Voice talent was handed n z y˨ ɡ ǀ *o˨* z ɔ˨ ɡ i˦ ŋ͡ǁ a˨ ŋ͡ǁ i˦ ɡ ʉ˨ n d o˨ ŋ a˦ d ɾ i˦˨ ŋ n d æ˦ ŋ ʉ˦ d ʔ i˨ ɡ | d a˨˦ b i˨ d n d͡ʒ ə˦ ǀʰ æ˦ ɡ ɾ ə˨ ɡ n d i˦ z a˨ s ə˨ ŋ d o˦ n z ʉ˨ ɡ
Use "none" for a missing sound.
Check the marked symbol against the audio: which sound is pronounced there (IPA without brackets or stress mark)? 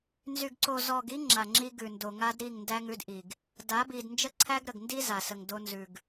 o˨